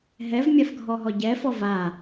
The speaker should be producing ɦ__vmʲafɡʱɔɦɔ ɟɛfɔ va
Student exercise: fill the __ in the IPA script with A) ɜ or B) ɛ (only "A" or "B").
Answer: B